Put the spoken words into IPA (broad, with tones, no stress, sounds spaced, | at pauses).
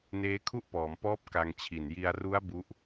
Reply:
n eː˦˥ kʰ u˥˩ ʔ p ɔː˩˦ m p ɔː˦˥ p̚ k a˧ ŋ t͡ɕʰ i˨˩ n j i˧ a̯ r u˦˥ a̯ b u˦˥ ʔ